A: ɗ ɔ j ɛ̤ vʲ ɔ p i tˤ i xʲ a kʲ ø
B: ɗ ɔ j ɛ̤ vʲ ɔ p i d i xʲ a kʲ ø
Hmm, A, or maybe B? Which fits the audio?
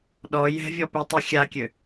A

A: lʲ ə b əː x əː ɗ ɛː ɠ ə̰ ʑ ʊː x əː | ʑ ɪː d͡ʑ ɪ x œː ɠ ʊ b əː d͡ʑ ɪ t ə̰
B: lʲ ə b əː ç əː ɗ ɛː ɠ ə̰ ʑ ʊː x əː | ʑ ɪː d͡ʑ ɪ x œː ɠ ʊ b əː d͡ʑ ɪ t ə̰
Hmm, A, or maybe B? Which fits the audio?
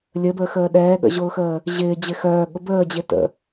A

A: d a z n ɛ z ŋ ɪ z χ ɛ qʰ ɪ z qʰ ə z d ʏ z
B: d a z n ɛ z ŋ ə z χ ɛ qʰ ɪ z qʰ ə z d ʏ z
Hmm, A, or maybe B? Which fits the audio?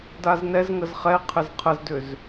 B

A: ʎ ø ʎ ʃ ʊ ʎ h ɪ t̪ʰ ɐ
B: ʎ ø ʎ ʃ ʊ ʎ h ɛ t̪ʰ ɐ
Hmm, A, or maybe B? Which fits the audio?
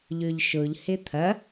A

